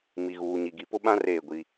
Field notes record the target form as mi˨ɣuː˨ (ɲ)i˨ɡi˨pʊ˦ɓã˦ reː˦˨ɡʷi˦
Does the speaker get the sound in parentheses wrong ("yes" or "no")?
no